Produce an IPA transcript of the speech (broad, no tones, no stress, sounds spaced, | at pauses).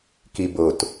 k i b o t